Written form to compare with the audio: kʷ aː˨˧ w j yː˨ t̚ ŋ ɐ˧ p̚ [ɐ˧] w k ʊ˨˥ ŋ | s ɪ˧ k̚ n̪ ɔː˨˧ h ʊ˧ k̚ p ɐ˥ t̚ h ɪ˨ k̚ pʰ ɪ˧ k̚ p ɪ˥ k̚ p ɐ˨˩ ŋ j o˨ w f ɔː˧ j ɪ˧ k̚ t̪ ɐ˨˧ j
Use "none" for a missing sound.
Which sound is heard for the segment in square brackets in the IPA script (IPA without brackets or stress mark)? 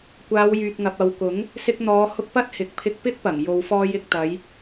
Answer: ɐ˧